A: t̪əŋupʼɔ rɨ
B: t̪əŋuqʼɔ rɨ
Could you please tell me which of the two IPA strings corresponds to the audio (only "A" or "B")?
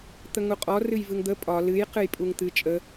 B